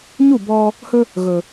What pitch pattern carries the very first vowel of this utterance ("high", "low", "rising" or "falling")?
falling